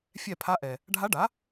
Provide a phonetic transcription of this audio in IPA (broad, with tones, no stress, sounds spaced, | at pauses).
fʲ ɛ˦˨ pʰ a˧˥ ʔ ɛ˩ | ɖʱ a˧˥ ɖ a˩˥